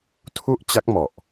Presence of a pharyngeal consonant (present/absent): absent